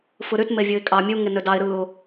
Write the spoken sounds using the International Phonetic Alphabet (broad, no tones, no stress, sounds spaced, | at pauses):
f ɯ ɾ y t m e vʲ ɯ ɪ̯ kʼ ɑ mʲ u ŋ e n ø d ɑ ɪ̯ ɾ ɯ ʊ̯